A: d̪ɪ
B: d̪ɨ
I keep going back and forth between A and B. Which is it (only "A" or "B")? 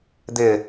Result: A